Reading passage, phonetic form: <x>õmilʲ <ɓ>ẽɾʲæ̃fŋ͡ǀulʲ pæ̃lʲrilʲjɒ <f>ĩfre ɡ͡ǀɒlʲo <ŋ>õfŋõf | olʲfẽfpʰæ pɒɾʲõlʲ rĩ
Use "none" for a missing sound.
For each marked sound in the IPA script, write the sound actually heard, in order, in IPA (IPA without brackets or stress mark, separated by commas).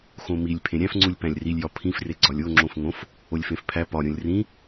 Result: x, pʰ, pʰ, ŋ͡ǁ